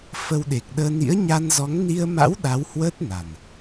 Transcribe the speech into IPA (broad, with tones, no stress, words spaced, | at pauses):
fə˧wɗe˨˩k̚ɗəː˧ nḭ˧˥ə̯ ɲa˧nzɔ˨˦ŋ ni˧ə̯ma̰˧˥w ɗa˨˦whwəː˦˥t̚na˨˩n